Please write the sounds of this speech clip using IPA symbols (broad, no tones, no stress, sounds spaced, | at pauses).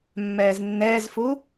mː ɛː z nː ɛː z f u